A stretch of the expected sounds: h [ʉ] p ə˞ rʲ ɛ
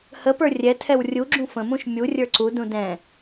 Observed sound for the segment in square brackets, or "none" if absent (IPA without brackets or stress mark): ə